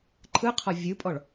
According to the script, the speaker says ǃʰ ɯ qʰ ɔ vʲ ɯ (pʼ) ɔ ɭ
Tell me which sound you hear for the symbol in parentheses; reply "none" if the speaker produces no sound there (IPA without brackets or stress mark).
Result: pʼ